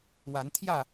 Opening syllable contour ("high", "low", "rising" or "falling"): rising